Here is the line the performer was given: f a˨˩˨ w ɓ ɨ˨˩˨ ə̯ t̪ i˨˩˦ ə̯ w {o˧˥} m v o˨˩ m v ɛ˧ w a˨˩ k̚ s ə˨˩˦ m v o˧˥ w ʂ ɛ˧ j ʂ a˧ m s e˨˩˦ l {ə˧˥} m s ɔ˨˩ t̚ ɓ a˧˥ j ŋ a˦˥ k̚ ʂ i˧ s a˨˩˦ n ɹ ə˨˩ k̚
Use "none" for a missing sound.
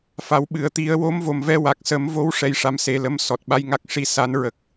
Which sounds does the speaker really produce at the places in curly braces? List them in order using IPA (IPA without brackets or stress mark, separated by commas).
o˧˥, ə˧˥